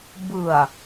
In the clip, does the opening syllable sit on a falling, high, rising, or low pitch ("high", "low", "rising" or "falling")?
low